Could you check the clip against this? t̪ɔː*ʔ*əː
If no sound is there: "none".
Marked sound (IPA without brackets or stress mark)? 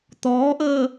ʔ